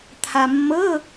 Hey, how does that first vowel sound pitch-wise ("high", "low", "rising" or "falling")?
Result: low